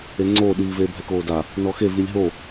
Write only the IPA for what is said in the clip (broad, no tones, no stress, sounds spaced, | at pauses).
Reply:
e ŋ͡ǀ oː ɗ iː v eː bʱ ɛ k oː d a | n ɔ x e v i lʲ ɦ o